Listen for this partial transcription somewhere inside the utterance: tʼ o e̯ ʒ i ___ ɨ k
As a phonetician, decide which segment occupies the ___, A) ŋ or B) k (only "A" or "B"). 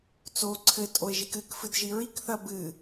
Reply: B